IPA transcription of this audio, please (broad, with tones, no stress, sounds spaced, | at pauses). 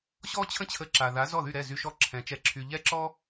ɕ ɔ˥ t͡ɕʰ ə̃˥ t͡ɕʰ ə˧ ǁ a˩ ð a˩˥ z ɔ˥˩ ð y˥˩ ɾ ɛ˥˩ z y˧ ʃ ɔ˥˩ ǁʰ ɛ̃˩˥ t͡ʃ ɛ˧ ǁʰ y˧ ʎ ɛ˥ ǁ ɔ˥